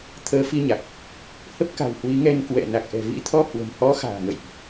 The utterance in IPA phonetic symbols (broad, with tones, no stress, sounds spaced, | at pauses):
t̪ʰ əː˨˦ f i˧ ɲ a˨˩ k̚ | h ə˦˥ p̚ k a̤˨˩ w h w i˨˦ ŋ ɛ˧ n k w ɛ̰˧˨ n a˨˩ k̚ ʔ ɛ̤˨˩ v ḭ˧˥ t̪ʰ ɔ˧ h w ə̤˨˩ m h ɔ˨˦ x a̤ː˨˩ ŋ ə̰˧˨ j ʔ